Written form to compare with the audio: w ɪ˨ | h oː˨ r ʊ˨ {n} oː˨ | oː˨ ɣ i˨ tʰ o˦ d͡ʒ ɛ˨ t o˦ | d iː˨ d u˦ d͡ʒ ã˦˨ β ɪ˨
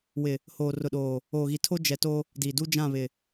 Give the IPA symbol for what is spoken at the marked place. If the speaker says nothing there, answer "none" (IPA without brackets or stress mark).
ɗ